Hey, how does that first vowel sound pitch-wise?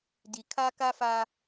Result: low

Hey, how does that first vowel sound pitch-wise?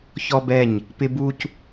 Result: high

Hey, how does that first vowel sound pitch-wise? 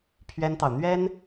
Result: high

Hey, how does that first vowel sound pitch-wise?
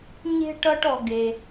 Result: low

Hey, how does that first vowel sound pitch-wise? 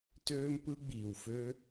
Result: high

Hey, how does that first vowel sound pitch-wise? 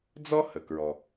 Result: high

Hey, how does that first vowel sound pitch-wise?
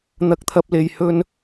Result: high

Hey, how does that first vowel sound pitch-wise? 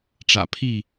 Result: low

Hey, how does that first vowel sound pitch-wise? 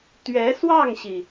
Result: rising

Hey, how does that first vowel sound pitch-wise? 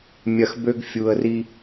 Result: low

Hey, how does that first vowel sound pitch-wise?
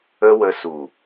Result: high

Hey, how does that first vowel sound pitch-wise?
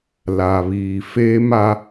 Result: low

